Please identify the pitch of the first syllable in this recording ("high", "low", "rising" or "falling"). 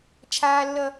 high